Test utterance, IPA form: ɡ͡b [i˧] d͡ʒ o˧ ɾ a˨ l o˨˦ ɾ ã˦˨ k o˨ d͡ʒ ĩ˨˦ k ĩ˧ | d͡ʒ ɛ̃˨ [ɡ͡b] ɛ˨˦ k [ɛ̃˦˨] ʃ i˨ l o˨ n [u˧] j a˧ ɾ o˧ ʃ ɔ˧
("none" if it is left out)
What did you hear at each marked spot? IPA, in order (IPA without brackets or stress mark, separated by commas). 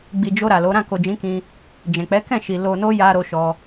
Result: i˨, k͡p, ɛ̃˦˨, o˧